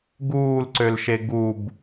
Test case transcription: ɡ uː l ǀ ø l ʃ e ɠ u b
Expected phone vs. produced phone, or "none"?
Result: ɠ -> ɡ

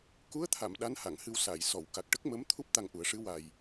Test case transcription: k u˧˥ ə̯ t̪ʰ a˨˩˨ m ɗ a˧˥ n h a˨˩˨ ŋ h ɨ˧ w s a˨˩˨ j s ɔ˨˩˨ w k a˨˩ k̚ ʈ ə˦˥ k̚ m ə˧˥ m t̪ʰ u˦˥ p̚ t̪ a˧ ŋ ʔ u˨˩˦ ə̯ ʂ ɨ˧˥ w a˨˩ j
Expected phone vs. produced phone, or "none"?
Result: none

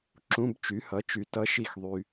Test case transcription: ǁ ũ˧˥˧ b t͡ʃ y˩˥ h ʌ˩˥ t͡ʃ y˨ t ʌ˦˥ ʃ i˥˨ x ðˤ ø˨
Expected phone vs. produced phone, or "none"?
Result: ø˨ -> y˨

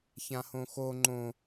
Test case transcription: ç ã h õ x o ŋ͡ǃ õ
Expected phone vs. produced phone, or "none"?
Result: none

